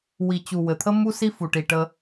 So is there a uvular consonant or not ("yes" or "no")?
no